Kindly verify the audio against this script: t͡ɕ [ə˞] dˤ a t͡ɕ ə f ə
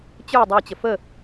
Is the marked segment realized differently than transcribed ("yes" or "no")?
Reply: no